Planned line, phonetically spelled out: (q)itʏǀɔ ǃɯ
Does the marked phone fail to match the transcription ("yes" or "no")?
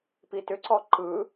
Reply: yes